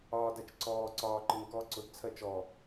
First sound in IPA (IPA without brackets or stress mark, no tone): ɒː